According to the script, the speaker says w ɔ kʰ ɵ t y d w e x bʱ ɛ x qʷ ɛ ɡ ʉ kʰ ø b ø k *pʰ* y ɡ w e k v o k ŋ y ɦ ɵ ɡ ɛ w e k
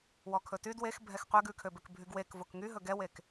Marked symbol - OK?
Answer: no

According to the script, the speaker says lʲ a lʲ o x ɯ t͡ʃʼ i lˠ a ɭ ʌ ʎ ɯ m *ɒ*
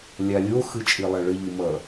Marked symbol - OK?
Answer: no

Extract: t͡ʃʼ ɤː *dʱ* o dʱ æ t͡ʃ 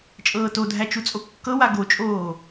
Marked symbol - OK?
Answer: no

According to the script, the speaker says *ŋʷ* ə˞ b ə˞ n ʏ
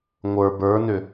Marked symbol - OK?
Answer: yes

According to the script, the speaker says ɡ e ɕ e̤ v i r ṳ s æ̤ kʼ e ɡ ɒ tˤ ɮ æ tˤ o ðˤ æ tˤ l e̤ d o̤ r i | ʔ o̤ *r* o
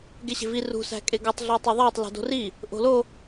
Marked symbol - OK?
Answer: no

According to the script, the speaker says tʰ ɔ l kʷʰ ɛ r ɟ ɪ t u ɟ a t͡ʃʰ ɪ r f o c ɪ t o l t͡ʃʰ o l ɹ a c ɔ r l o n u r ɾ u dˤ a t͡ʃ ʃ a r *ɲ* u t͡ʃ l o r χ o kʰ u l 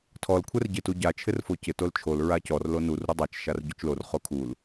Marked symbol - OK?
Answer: no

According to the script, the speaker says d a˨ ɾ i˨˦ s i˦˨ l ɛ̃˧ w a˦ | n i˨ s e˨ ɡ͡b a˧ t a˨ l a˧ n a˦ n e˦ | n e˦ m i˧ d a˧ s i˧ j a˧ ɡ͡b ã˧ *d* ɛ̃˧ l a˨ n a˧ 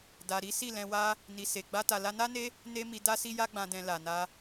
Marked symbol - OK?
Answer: yes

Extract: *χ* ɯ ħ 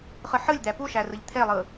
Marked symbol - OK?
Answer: yes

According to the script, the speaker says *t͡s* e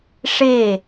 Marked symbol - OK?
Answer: no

